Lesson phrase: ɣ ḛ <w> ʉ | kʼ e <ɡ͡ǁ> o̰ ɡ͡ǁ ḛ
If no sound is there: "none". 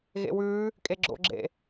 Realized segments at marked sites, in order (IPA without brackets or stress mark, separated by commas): w, ɡ͡ǁ